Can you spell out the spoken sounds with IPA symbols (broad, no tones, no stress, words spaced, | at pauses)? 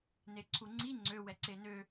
neǀʰuŋ͡ǀi ŋ͡ǀø wɛǀenø